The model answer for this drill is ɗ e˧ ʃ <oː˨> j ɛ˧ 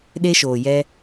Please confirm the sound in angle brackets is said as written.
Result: yes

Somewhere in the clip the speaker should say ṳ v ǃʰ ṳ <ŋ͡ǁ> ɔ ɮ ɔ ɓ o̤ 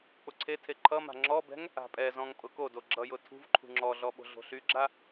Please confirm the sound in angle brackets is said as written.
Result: yes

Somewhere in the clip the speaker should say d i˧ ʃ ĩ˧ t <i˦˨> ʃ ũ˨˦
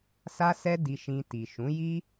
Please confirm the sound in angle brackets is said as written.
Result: no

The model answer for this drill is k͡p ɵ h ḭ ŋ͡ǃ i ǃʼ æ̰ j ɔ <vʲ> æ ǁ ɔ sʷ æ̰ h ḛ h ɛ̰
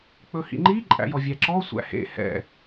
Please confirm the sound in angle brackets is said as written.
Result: yes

